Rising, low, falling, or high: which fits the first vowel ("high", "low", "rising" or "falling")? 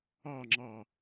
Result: falling